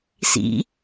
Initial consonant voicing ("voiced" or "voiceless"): voiceless